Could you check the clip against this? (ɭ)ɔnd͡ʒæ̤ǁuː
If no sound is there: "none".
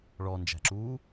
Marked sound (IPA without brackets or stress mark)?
ɭ